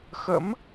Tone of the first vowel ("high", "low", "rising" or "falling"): rising